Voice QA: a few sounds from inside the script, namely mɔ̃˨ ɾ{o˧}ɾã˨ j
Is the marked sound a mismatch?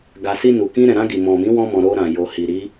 no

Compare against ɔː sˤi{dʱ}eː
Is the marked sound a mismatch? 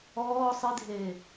no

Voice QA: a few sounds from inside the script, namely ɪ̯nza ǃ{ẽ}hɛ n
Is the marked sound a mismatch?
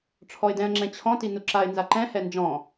yes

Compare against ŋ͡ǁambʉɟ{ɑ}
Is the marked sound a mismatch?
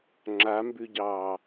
yes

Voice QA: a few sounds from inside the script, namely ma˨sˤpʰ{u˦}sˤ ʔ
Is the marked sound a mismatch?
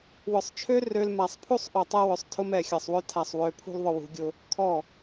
no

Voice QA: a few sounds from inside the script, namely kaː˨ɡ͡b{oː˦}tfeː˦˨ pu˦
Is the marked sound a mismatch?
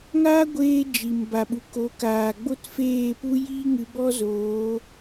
yes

